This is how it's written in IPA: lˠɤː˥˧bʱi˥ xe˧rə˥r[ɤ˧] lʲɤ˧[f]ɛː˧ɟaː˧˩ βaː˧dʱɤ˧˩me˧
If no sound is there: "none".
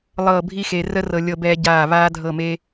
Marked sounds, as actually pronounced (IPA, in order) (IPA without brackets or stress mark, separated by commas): ɤ˧, b